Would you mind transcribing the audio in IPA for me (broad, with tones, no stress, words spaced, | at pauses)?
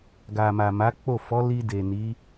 ɡa˨ma˨ ma˨˦k͡po˦˨ fɔ˨˦ li˧ de˨ni˨˦